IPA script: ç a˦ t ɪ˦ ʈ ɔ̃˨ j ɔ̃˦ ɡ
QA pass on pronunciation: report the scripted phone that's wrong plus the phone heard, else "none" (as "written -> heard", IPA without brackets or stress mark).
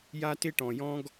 ç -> j